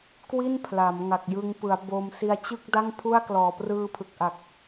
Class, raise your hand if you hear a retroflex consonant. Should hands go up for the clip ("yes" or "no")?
no